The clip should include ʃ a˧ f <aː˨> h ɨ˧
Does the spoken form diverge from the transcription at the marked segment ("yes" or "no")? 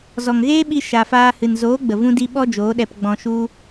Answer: yes